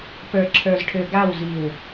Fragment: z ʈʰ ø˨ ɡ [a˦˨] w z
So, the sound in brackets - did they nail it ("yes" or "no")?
yes